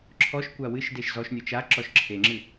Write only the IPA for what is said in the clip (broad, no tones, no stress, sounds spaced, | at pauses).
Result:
ǁʰ ɔ ʃ kʷ a w ɨ ʃ d e ʃ z ɔ ʃ nʲ o t͡ʃ a ǁ ɔ ʃ ǁʰ e ŋ͡ǁ ɨ